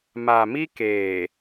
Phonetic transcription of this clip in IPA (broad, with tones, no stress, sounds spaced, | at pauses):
m a˨ m i˦ k eː˨